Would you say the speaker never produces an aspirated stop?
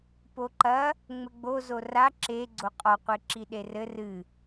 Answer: yes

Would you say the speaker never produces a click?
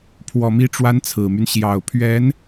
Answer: yes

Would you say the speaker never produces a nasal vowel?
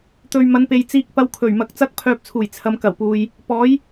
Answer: yes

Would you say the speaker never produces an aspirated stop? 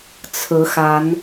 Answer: no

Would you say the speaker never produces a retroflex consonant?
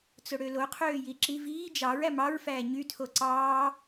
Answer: no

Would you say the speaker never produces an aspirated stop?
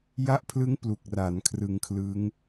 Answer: no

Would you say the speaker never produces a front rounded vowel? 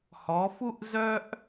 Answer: no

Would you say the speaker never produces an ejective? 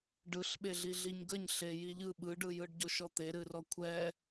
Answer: yes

